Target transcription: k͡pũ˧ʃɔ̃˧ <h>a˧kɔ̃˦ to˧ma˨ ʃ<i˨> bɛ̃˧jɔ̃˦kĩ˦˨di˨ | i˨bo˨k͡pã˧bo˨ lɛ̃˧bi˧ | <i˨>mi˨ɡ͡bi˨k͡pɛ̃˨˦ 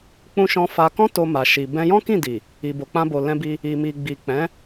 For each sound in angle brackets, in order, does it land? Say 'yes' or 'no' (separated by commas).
no, yes, yes